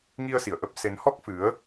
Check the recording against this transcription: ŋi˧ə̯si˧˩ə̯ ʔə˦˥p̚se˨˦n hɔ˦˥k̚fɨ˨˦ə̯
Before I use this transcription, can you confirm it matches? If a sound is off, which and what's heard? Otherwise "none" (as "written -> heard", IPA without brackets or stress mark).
none